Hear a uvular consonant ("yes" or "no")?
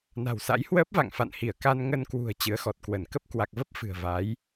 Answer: no